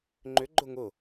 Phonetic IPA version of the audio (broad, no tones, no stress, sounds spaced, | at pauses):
ŋ͡ǃ ʏ ɡ͡ǃ ʊ ŋ ʊ